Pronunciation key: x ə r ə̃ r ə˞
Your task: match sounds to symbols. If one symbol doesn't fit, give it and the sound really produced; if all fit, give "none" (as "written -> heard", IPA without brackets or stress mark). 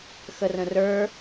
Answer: none